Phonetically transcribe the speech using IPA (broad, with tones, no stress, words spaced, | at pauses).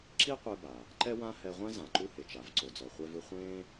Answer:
ǁi˥qʷɛ˧ba˩ | ǃɛ˥wã˥ hɛ˧ʁʷɛ̃˥ zã˩ǃu˧he˩t͡ʃa˩v ǀo˩d͡zɔ˩ χʷɛ˧vɯ˧ χʷẽː˥